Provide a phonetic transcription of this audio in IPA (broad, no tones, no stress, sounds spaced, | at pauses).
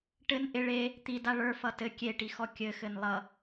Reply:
ʈ ɘ n ʔ ɪ ɭ e | t̪ i d a ɭ ə˞ f ʌ t ɘ kʲ e ʈ i x ɔ kʲ ɘ x ɘ n lˠ ʌ